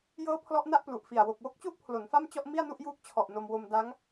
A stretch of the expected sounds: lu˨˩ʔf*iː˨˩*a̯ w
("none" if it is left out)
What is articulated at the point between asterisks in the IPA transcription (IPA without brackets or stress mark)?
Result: i˨˩